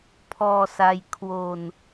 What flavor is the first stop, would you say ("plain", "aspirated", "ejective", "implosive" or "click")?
aspirated